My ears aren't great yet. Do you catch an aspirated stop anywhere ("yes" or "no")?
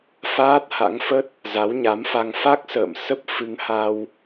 no